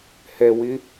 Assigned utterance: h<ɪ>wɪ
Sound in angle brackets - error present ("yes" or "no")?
yes